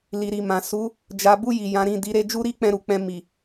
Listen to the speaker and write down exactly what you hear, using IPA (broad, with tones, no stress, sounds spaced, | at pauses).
l i˨ ɾ i˨ m ã˨ s u˨˦ | d͡ʒ a˨ b u˧ j i˨ j ã˨˦ ɾ ĩ˦˨ d i˨˦ ɾ e˧ d͡ʒ u˦ ɾ i˦ k͡p ɛ̃˧ ɾ u˨ k͡p ɛ̃˧ m i˨